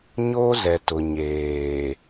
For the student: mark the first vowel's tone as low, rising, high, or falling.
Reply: high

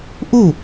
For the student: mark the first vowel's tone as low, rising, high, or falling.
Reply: falling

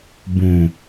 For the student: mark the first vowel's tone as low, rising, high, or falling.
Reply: low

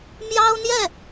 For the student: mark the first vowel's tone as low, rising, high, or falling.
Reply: high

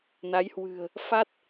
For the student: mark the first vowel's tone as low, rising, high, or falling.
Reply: rising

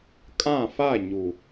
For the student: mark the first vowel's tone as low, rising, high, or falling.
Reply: falling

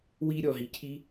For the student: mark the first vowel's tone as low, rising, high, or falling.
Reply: high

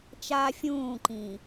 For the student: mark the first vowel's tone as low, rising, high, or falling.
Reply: high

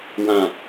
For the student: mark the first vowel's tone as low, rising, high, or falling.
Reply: low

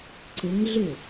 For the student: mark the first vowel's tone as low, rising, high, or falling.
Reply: rising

